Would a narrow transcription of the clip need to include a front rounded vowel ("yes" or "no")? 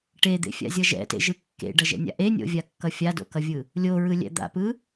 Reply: no